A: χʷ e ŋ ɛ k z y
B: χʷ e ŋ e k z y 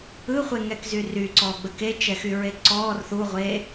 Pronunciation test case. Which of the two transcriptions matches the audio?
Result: A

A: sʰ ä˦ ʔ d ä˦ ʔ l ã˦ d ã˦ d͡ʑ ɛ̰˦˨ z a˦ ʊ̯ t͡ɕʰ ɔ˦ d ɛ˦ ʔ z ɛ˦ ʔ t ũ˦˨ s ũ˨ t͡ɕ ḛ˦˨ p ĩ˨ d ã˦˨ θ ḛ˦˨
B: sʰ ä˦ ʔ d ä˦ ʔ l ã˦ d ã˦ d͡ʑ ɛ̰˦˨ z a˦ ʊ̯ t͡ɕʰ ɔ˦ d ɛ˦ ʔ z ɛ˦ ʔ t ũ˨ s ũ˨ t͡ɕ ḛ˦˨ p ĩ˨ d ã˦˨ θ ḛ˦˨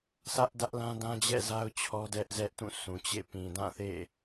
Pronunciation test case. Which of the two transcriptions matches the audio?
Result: A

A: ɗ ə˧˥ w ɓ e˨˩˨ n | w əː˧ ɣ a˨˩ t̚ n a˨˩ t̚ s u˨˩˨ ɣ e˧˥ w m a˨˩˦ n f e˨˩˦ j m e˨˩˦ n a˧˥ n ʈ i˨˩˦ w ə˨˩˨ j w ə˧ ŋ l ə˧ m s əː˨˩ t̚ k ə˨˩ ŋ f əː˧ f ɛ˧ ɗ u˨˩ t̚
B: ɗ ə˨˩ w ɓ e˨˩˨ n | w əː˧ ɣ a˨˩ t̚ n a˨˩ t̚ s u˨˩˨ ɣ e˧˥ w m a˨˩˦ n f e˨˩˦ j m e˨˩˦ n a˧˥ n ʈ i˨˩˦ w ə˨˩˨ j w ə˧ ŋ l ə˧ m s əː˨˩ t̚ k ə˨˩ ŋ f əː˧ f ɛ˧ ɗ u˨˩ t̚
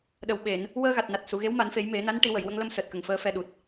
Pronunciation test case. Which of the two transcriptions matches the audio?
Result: B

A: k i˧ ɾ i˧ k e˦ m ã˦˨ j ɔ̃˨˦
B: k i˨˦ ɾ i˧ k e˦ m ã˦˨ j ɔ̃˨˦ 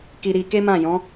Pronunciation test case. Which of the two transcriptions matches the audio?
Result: A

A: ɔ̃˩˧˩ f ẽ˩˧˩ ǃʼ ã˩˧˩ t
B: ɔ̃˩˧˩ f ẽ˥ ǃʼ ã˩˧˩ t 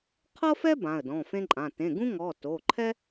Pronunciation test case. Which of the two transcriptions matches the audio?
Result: B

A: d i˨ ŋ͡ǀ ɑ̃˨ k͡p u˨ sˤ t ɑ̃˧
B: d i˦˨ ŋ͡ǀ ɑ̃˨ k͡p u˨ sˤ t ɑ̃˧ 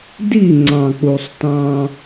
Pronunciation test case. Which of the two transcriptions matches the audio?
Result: B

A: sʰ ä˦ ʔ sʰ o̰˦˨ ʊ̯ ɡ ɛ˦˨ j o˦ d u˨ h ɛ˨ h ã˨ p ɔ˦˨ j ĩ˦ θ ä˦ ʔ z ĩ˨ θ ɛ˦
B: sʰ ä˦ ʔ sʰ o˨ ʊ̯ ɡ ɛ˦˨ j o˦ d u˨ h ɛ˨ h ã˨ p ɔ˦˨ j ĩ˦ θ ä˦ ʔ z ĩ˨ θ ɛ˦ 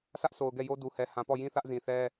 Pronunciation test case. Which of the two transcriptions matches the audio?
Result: B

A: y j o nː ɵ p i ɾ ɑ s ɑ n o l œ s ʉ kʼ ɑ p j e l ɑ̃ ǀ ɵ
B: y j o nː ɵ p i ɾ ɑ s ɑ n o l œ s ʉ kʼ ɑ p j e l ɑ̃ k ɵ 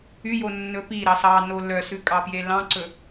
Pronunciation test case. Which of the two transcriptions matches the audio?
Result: A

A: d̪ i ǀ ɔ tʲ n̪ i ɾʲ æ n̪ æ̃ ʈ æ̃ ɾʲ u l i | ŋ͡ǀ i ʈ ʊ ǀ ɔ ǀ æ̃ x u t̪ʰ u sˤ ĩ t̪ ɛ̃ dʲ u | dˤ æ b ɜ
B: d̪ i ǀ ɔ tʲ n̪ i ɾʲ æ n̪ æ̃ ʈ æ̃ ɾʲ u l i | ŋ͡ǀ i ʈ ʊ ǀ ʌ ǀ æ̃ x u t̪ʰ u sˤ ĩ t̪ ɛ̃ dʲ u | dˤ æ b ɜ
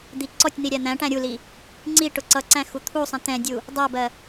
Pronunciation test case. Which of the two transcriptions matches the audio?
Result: B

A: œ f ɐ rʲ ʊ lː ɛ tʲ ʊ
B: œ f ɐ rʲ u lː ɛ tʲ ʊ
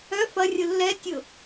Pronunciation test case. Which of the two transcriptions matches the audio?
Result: A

